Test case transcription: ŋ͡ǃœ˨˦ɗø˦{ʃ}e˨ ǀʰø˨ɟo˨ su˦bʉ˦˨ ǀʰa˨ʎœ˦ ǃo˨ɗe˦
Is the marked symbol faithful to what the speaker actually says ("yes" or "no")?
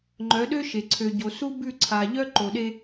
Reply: yes